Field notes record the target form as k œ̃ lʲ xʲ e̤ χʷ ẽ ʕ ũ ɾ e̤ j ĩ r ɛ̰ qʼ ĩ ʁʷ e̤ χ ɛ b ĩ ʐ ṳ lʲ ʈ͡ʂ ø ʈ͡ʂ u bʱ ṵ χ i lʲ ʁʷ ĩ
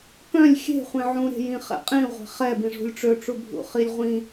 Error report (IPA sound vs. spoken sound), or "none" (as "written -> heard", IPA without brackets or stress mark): r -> χ